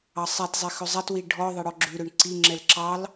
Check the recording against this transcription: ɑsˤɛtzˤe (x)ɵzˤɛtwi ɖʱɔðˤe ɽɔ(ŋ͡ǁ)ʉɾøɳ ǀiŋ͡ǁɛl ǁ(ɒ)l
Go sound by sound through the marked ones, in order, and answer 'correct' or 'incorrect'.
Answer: correct, incorrect, incorrect

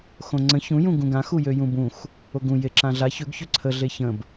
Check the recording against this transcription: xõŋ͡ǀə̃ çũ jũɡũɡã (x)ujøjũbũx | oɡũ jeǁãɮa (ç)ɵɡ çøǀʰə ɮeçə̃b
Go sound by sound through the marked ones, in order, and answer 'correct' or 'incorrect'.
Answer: correct, correct

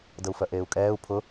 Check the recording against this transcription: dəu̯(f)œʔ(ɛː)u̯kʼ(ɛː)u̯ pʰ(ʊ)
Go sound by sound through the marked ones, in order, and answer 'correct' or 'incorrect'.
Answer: correct, incorrect, correct, correct

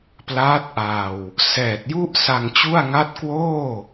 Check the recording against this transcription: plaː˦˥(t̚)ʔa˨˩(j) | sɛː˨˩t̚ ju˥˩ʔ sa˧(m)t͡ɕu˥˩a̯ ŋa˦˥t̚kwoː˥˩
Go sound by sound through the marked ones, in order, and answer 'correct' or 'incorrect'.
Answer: correct, incorrect, incorrect

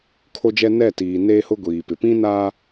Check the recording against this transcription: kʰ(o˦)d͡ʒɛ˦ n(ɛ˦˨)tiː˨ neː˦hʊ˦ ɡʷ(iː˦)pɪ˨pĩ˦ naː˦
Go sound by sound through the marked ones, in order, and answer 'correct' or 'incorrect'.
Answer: correct, correct, incorrect

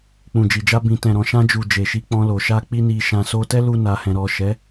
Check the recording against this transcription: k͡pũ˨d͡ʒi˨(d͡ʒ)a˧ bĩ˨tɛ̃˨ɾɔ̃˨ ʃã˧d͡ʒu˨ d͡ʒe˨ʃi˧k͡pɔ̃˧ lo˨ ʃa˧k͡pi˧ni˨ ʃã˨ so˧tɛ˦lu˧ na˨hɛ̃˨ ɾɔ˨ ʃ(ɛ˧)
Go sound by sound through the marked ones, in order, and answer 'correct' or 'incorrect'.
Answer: correct, incorrect

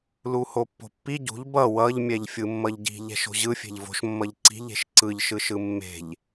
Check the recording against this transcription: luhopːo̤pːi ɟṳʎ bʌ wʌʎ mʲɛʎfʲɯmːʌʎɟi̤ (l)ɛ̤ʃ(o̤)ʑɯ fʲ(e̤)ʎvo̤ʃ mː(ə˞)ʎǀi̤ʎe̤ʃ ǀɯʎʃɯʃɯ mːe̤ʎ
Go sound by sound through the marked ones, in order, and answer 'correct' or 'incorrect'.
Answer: incorrect, correct, correct, incorrect

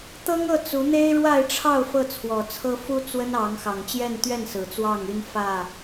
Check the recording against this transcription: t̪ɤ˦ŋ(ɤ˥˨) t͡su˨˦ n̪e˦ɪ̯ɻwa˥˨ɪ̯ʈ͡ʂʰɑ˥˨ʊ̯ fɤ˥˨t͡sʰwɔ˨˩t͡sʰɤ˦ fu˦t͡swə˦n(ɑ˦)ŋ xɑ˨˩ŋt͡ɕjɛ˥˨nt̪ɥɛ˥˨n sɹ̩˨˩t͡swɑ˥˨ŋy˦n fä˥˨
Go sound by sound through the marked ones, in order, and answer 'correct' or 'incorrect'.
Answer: correct, incorrect

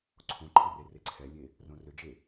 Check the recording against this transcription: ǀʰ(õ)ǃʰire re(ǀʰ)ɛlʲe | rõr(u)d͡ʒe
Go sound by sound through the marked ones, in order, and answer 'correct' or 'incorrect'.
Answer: correct, correct, incorrect

